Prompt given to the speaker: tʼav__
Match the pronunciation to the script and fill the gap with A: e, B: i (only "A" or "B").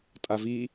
B